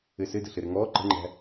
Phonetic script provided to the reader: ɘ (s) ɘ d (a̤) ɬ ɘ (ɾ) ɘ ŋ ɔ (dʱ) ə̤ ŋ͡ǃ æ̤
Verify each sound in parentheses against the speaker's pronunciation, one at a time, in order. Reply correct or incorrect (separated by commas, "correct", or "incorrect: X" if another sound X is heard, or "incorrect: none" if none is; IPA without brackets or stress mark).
correct, incorrect: ə̤, correct, incorrect: ǃ